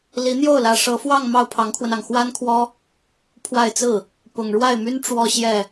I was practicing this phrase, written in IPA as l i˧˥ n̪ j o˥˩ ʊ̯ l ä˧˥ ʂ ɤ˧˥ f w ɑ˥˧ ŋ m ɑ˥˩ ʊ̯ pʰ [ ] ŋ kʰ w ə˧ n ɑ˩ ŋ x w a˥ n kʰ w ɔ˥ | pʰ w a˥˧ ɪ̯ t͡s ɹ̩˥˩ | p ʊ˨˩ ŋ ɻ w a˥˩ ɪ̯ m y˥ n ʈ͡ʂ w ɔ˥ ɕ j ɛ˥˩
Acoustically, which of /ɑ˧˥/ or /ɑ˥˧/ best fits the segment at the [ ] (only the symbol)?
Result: ɑ˧˥